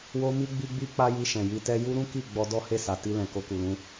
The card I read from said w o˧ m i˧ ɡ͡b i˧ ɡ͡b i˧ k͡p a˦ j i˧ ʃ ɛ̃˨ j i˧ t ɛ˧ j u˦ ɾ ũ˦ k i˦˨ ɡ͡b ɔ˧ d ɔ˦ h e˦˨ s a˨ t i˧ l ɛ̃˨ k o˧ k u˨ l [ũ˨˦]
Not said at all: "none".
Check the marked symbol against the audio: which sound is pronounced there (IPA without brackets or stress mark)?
ũ˨˦